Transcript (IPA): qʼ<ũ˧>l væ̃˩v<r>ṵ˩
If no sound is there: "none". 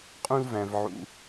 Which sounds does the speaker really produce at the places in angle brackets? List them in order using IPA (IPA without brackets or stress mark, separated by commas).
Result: ũ˧, ʕ